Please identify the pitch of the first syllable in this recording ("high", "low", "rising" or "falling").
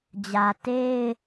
low